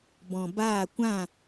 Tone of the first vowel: low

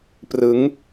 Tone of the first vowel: rising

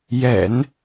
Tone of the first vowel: low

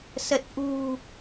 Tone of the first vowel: low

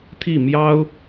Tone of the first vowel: falling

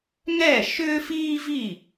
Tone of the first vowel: falling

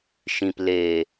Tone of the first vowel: low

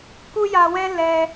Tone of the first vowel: high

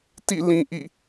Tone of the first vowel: falling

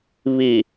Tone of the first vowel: low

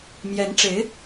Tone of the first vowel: rising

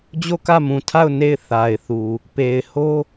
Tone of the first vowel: falling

